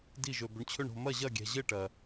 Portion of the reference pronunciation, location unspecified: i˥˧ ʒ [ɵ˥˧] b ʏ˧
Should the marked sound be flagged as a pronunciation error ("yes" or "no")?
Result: yes